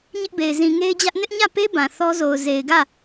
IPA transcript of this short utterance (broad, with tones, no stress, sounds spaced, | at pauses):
ɲ ɪ˦ ʔ b e˨ ɪ̯ z ĩ˨ ŋ e˦ ɪ̯ d͡ʑ ä˦ ʔ n ɪ˦ ʔ ɲ ä˦˨ p e˦ b ã˨ θ ɔ˦ z o˨ ʊ̯ z e˨ ɪ̯ ɡ ä˦˨